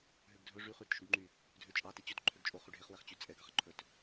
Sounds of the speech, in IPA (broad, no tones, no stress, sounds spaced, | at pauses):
ɦ ø ɡ dʱ ɵ ʐ y χ y ɾ e t ʃ y ɡ ŋ͡ǃ y | dʱ ø t͡ʃʼ ɑ t e t͡ɕ ɵ t ǃʰ ø ɡ t͡ʃʼ o χ y ɖʱ e χ w ɛ χ t͡ɕ y t͡sʼ ɛ ɡ ɑ χ ǃʰ ɵ t